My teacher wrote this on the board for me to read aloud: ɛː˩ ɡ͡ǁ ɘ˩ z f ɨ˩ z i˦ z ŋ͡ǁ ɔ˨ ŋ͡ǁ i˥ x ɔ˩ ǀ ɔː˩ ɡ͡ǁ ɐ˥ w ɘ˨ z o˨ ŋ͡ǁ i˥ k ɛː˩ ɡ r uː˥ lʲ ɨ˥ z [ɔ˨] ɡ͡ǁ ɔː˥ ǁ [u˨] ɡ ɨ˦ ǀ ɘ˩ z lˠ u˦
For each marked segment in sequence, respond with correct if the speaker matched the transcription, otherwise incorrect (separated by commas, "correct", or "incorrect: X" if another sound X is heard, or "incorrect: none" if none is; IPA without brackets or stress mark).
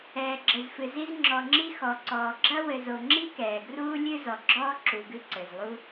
incorrect: ɔ˩, correct